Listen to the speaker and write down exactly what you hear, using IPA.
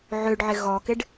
ʕ ø ɖ ʕ ɪ ɣ ɔ k ɪ ɖ

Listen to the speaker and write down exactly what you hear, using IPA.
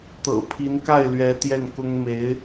t̪ ɤ̰˨˩ pʰ i˧˥ n k a˥˩ ɪ̯ l ɥ ɛ˧˥ t̪ j ɛ˥˩ n k ʊ˥ ŋ m e˧˥ ɪ̯

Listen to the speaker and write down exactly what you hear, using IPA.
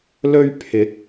l ɵ˧ ɥ pʰ ɪ˨˥ k̚

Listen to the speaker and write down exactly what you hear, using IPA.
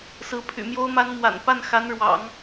s ɹ̩˧˥ pʰ y̰˨˩ m j o˥ ʊ̯ m a˥ n m w a̰˨˩ n p a˥˩ n x a˧˥ n ɻ w ɑ̰˨˩˦ ŋ

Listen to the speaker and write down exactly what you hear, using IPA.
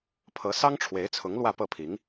pʰ ɤ˧˥ s ɑ˥ ŋ ʈ͡ʂʰ w e˧˥ ɪ̯ t͡sʰ ʊ˧˥ ŋ l w ä˥˧ p ɤ˥˩ pʰ i˧˥ ŋ

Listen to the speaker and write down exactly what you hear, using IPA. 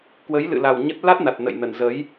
k w ə˨˦ j l ɨ̰˧˨ l a˨˩ w ɲ ə˦˥ t̚ l a˦˥ t̚ n a˨˩ t̚ n ə̰˧˨ j n ə˨˩ n z ə˨˦ j

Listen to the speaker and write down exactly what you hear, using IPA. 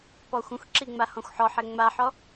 p ɔ xʷ ə̃ xʷ ǁ i ŋ͡m a h ɔ̃ xʷ ħ ɔ ħ ɛ ŋ͡m a ħ ɔ

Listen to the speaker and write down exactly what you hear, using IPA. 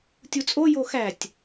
tʲ u t͡sʼ o j o x æ tʲ

